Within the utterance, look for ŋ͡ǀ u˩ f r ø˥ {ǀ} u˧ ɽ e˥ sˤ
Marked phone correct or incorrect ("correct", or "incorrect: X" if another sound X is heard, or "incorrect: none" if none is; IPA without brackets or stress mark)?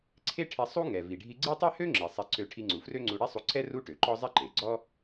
incorrect: ŋ͡ǀ